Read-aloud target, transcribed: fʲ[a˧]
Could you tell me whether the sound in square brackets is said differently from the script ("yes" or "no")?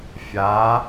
yes